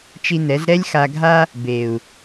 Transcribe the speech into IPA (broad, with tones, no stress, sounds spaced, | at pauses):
t͡ʃ i˧ n ɛ˨˦ z ɾ ɛ˦ lʲ x a˧ ɡʱ a˦ | b e˨ u̯